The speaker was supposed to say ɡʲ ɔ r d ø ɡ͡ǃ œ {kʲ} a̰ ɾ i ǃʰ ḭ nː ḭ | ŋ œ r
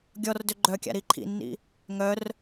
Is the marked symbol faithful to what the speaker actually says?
yes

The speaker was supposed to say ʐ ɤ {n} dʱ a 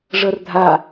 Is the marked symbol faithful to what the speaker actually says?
no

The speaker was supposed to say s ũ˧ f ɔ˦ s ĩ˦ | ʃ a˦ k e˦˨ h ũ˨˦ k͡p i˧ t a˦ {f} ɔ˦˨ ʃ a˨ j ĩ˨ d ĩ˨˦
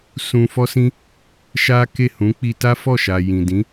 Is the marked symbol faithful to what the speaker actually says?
yes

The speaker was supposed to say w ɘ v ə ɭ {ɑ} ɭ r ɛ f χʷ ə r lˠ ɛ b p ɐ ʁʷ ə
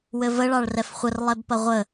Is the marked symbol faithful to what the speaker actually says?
yes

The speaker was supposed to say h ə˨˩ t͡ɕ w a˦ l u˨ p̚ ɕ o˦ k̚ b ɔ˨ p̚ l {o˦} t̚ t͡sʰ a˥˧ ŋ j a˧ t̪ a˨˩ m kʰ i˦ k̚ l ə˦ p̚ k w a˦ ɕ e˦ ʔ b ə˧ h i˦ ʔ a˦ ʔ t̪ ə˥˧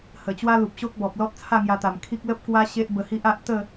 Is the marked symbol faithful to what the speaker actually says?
no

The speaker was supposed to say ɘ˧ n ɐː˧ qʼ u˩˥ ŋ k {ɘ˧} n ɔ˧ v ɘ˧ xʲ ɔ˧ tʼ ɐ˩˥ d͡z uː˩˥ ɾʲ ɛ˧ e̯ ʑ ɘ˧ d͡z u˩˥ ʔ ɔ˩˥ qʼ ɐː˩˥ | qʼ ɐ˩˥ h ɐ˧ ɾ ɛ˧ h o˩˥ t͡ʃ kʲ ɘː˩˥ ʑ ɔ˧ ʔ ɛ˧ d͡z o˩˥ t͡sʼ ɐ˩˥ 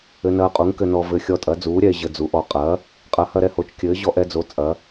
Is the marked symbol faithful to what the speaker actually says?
yes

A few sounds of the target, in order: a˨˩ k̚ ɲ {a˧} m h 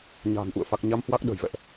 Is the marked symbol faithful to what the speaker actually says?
yes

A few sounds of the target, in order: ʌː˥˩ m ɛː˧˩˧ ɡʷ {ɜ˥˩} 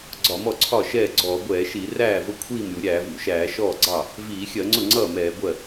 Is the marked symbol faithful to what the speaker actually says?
yes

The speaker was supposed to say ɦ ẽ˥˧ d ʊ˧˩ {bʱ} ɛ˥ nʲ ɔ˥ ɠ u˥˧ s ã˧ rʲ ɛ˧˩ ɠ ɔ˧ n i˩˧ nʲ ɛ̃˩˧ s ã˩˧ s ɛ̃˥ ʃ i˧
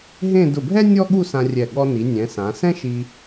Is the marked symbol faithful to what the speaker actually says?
yes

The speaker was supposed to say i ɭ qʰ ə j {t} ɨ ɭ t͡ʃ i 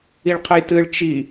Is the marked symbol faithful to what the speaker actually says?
yes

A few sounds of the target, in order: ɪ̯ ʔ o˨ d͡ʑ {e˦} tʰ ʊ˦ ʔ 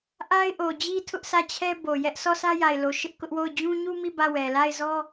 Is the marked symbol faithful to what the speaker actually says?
no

